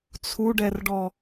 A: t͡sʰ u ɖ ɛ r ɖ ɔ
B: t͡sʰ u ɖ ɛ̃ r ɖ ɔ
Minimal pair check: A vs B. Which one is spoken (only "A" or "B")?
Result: A